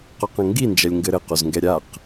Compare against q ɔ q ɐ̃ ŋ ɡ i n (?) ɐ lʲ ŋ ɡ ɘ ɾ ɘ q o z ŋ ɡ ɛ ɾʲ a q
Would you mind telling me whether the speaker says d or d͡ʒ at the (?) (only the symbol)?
d͡ʒ